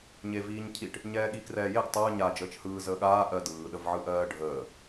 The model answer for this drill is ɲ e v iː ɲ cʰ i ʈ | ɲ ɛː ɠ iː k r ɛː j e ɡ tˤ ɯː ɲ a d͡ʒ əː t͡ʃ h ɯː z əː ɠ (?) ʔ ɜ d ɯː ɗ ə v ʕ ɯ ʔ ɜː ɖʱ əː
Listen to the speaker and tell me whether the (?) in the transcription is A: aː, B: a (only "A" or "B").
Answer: A